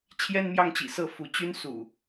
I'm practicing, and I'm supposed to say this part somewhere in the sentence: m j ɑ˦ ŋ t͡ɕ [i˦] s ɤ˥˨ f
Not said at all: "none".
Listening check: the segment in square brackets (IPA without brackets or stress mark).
ḭ˨˩